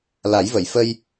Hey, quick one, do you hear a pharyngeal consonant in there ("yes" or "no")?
no